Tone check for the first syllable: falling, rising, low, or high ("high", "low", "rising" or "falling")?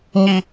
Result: high